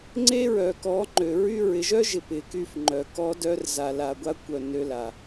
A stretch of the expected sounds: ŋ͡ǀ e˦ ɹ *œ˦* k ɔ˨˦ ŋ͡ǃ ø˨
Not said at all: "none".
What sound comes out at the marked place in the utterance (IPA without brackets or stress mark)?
œ˨